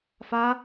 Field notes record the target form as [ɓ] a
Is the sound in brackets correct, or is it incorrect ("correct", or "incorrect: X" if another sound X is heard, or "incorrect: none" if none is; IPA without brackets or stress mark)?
incorrect: f